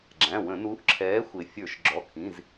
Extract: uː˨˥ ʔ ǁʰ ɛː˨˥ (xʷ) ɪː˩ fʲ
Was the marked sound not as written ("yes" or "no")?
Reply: no